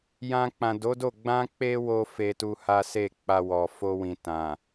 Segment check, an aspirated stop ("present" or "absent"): absent